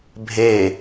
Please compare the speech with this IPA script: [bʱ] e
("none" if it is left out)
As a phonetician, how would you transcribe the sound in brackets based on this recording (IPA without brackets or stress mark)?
bʱ